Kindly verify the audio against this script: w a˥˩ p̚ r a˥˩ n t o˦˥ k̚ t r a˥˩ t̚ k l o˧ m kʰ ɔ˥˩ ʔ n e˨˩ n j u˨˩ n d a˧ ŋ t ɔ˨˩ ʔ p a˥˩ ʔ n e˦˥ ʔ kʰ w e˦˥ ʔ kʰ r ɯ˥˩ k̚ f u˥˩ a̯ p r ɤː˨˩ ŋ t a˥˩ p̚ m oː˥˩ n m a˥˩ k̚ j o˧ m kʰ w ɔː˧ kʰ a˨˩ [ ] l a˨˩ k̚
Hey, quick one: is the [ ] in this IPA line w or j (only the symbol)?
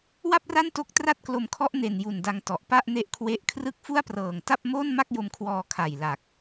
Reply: j